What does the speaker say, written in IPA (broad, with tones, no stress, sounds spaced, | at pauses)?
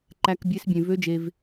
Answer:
ǃ æ˧ k bʲ e˦˥ s bʲ ẽ˧ v ø˦˥ d͡ʒ e˧ v